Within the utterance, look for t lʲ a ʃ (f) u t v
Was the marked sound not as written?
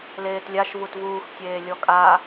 yes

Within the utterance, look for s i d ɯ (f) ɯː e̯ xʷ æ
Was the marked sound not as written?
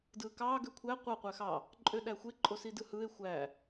yes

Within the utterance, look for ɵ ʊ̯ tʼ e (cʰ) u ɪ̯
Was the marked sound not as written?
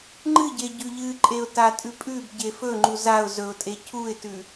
no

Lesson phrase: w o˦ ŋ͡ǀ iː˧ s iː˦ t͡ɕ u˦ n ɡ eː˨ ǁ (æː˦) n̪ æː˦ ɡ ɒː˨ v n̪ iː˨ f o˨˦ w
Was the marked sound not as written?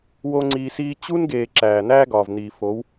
yes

